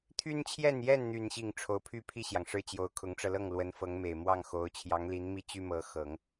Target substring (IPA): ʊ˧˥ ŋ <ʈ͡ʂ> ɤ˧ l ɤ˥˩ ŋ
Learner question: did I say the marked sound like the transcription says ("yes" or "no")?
yes